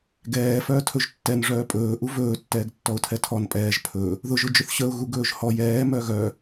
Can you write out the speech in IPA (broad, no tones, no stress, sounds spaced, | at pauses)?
ɡ ɛː f œː tʰ ɵ ʒ tː ɛ n ʐ œː pʼ ɵː ʔ u v ɵː tː ɛː ɡ tː ɔ ʊ̯ tʰ ɛ tʰ ɔ n pʼ ɛː ʒ pʰ ɵ | ð ʊ ʒ ʊ d͡ʒ ʊ θ ɕ ə ʊ̯ ɣ u ɡ ɵː ʒ h ɔ j ɛː m œ ɣ œ